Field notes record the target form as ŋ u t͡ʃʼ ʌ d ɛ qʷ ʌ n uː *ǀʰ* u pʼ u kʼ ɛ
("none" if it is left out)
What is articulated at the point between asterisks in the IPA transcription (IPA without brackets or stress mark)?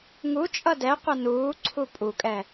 ǀʰ